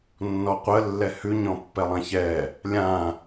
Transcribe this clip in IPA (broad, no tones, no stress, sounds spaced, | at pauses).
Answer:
nː ɔ qʷ ə lː ɛ h ʉ ɲ ɔ̃ pː ɛ lˠ ã ç ɛ | lʲ ã